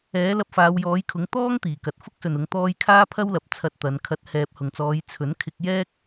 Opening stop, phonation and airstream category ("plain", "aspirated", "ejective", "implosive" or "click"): plain